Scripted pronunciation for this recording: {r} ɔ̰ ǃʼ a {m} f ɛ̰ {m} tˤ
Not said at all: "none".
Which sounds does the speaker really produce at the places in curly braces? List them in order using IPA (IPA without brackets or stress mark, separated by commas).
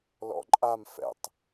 l, m, none